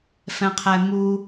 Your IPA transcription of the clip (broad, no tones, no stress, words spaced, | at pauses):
fɛ̃qʰɛmu